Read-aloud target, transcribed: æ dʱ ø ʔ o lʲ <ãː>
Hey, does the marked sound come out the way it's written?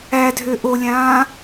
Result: yes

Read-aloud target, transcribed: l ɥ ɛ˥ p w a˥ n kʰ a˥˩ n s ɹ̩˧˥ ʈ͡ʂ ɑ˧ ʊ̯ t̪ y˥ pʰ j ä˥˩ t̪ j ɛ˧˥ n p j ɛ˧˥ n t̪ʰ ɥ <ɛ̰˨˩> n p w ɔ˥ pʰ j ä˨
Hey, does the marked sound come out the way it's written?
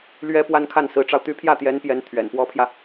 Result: yes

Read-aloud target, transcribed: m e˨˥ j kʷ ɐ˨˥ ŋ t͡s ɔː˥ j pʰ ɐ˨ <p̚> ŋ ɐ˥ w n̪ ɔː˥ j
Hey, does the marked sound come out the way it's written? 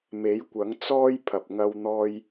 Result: yes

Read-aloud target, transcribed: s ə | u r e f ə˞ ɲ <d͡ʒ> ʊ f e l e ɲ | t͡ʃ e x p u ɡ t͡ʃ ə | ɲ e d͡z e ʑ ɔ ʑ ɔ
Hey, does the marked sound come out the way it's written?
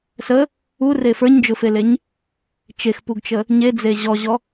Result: yes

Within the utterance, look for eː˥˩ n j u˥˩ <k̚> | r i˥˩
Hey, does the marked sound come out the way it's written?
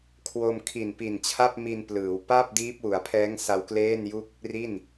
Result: yes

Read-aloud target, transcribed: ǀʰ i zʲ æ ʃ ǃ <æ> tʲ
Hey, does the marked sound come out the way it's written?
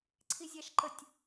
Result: no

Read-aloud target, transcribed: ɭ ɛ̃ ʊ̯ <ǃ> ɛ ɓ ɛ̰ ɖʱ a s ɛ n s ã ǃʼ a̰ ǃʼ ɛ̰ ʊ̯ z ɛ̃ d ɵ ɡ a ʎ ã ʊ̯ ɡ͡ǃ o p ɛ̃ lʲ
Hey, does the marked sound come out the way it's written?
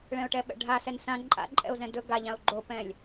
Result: no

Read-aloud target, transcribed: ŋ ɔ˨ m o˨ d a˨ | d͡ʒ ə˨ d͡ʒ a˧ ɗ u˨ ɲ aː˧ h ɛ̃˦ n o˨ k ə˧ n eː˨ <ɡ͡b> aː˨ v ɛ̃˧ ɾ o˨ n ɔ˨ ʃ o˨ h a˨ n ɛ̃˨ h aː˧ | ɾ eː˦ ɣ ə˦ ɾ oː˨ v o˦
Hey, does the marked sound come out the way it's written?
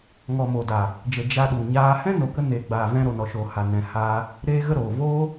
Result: yes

